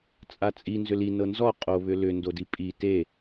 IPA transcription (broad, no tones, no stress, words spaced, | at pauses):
t͡sʼat͡sʼi nzʏli nɤnzɔ qʼo βʏlʏ ndodipʼi te